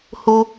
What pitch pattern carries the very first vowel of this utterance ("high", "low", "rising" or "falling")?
low